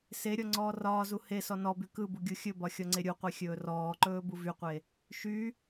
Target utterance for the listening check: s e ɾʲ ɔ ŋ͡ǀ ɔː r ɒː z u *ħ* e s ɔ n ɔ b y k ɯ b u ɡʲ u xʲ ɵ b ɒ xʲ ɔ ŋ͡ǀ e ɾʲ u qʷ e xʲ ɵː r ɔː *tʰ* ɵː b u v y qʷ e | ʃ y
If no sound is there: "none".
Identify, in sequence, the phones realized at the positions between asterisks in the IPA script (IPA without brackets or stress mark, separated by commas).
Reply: h, ǃ